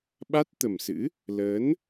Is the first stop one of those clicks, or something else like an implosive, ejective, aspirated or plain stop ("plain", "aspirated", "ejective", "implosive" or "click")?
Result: implosive